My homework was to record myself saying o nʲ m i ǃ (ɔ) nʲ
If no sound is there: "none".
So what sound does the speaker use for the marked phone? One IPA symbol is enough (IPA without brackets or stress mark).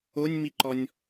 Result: ɔ